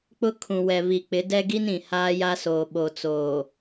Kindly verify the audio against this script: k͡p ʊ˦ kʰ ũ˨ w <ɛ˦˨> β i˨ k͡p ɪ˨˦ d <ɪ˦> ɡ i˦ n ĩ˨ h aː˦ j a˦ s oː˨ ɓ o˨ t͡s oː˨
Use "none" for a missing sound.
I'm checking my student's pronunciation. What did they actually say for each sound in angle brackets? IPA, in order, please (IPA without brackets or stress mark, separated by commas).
ɛ˨, ɛ˦